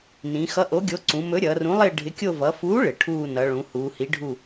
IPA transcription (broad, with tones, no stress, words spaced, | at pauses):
nĩ˩˧ xʌ˨˥ʔo˨˥ɡʲo˨˥ ǀũ˩˧mɵ˨˥ ɾʲʌː˩˧rũ˨˥lˠɪː˦˨ ɖʱɪ˨˥kʲo˦˨ vʌ˩˧fuː˨˥ ɭɪ˩˧ʈʰuː˦˨ nʌ˩˧ɭũ˩˧ huː˩˧hi˨˥ɖʱu˦˨